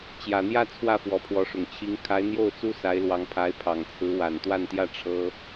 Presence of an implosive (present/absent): absent